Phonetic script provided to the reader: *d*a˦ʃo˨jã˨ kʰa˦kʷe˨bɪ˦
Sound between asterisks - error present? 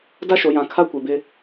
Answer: no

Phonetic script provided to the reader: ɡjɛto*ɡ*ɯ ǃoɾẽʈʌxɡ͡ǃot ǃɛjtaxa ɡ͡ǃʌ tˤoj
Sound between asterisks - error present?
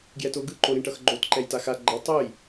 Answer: no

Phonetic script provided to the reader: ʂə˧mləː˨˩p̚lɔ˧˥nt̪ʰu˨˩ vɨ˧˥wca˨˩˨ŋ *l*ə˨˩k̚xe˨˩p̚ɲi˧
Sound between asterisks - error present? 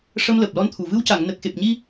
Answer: yes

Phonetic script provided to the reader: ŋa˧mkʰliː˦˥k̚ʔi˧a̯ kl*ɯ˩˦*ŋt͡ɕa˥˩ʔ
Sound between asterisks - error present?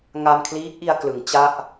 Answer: no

